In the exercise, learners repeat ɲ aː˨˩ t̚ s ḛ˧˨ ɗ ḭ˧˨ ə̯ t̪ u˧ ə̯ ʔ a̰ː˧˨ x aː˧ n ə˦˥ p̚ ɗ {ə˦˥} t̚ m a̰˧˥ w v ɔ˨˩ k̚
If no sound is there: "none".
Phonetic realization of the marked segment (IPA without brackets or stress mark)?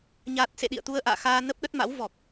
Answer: ə˦˥